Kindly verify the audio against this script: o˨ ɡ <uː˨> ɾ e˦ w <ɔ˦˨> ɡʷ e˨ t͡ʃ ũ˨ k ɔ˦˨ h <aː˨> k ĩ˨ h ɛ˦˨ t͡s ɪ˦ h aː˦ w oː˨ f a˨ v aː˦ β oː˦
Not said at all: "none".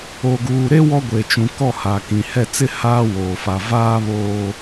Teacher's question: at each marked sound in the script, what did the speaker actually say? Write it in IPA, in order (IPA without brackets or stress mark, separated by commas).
uː˨, ɔ˦, aː˨